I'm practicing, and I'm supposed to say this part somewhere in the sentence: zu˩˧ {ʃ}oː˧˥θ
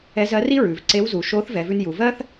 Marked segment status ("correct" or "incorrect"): correct